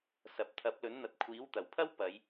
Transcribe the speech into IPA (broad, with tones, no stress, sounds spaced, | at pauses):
s ɐ˨ p̚ t̪ʰ ɐ˨˥ p̚ l ɵ˨˥ n n̪ ɐ˨ t̚ kʷʰ iː˨˥ w t̪ ɐ˨˩ w pʰ ɐ˥ w p ɐ˨˧ j